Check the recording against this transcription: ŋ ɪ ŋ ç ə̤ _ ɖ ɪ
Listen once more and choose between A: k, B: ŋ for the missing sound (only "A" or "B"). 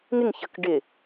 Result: A